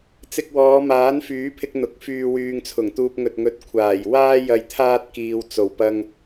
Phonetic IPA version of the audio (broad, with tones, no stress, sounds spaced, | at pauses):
t͡s ɪ˧ k̚ w ɔː˨˧ m aː˨˥ n f yː˨˥ pʰ ɪ˧ k̚ n̪ ʊ˨ k̚ f yː˧ w yː˨ ŋ t͡sʰ ʊ˨˩ ŋ t̪ uː˧ p̚ ŋ ɵ˨ t̚ ŋ ɵ˨˥ t̚ kʷʰ aː˨˩ j w aː˥ j ɐ˨ j t̪ʰ aː˧ t̚ k iː˨ w t͡s o˨˩ w p ɐ˧ ŋ